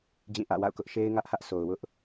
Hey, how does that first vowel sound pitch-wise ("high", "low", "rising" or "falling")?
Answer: falling